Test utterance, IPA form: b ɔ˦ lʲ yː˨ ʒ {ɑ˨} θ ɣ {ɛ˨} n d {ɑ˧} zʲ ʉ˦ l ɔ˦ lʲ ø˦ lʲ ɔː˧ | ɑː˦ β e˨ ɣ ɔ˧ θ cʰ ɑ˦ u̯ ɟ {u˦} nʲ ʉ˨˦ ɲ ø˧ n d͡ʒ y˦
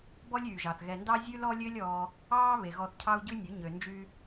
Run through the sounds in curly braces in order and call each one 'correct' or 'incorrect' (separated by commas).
correct, correct, incorrect, incorrect